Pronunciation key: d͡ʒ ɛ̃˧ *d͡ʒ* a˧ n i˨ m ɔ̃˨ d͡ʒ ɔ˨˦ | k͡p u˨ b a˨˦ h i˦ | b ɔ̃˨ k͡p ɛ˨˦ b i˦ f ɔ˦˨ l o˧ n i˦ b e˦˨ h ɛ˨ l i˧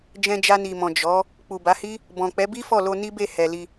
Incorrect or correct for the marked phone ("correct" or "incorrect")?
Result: correct